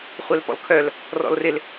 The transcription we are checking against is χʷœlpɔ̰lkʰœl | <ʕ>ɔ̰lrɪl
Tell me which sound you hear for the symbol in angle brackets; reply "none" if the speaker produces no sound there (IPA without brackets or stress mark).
r